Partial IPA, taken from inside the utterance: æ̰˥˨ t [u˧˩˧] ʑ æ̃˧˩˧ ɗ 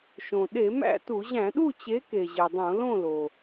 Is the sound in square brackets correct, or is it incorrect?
correct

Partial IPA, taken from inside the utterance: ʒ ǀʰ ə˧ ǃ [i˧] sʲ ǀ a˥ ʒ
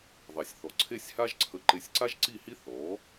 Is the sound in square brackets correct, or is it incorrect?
incorrect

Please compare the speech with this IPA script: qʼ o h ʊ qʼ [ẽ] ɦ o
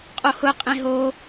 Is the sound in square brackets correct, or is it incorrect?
correct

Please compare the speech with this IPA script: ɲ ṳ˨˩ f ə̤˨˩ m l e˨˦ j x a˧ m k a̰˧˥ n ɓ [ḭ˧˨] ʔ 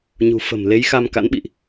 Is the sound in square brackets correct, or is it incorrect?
correct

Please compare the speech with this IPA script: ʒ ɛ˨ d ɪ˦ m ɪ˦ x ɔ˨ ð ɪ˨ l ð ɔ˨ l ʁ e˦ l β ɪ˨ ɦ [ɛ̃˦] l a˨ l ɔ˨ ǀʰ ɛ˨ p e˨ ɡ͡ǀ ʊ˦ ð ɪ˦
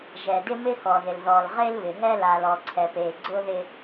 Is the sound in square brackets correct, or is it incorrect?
incorrect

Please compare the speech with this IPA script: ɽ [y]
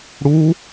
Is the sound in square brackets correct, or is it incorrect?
incorrect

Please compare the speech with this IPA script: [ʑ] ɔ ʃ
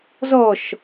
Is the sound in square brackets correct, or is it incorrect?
incorrect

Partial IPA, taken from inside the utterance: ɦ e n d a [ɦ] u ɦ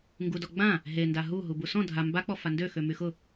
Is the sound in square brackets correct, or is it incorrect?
correct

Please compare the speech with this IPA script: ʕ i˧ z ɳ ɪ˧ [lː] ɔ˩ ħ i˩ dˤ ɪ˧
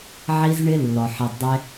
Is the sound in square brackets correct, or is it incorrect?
correct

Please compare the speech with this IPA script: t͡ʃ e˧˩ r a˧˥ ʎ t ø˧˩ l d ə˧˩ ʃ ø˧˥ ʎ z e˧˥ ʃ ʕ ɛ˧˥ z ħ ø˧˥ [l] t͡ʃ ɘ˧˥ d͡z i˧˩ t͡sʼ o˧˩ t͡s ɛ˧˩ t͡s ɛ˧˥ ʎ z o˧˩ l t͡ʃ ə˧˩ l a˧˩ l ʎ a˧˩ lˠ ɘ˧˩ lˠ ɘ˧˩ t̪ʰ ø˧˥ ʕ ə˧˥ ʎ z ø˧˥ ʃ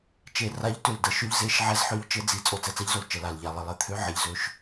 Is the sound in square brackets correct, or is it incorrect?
incorrect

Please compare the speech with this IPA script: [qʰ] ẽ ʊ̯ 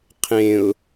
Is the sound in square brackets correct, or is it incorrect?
correct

